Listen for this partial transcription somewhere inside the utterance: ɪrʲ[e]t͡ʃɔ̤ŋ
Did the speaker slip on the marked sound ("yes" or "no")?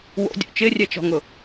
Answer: yes